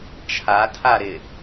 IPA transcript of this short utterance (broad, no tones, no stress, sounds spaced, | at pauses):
t͡ʃʰ a tʰ a ɾ ɪ